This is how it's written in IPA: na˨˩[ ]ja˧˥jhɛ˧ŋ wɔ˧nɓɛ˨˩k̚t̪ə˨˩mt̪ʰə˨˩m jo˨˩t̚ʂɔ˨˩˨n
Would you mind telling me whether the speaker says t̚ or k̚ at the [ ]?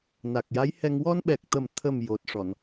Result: k̚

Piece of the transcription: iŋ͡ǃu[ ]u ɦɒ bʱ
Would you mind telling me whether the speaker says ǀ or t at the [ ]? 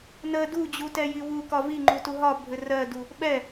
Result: t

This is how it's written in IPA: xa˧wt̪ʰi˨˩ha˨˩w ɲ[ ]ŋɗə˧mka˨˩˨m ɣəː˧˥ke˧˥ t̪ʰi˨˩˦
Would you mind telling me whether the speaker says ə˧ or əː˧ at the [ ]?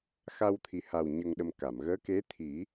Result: ə˧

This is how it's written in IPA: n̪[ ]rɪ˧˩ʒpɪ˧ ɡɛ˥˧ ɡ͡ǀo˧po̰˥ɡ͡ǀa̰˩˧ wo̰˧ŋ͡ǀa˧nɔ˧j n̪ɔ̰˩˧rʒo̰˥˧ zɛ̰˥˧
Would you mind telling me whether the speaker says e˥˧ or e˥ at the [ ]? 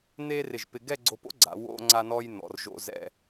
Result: e˥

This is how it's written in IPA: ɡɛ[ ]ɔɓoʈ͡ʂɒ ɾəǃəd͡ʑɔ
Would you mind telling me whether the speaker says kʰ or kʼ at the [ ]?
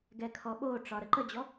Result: kʰ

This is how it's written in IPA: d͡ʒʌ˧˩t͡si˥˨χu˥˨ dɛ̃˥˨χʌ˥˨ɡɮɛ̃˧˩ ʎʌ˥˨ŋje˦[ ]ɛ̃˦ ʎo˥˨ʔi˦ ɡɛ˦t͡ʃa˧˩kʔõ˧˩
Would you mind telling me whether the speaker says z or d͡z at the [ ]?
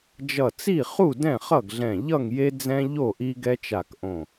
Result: d͡z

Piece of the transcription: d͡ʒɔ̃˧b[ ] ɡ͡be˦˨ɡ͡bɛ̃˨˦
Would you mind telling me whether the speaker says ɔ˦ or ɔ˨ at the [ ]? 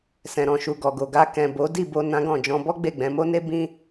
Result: ɔ˦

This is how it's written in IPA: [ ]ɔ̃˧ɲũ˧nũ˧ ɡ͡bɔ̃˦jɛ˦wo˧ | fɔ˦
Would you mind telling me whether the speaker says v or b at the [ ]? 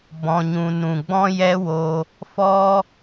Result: b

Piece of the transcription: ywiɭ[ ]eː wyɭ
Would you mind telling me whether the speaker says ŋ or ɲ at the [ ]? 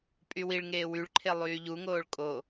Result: ŋ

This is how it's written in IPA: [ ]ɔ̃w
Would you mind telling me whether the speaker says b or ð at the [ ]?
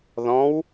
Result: ð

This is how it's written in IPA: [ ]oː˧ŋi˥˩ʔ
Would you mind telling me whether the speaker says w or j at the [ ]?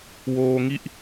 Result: w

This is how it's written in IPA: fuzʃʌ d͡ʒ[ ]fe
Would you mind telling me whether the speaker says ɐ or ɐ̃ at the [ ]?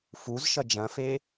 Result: ɐ̃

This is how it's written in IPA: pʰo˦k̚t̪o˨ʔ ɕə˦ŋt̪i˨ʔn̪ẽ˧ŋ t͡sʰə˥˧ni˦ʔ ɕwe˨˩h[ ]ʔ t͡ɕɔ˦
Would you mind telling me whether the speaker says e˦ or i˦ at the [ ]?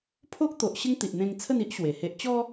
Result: e˦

